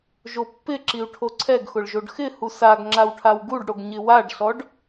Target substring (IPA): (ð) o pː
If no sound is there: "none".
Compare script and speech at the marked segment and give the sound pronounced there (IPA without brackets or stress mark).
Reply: ʒ